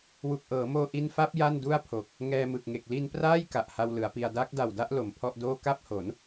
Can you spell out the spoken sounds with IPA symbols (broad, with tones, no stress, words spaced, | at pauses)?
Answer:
wu˨˩k̚ʔɤː˩˦moː˧ ʔi˧nfa˦˥p̚ ja˥˩ndu˥˩a̯pʰo˨˩k̚ | ŋɛː˧mɯ˨˩k̚ŋe˨˩k̚ li˧npraː˥˩j ka˨˩ʔha˧wlɯ˩˦a̯pi˧a̯ daː˦˥k̚da˨˩wda˥˩ʔ lo˨˩mpʰɔ˥˩ʔdoː˥˩ ka˥˩p̚ho˩˦n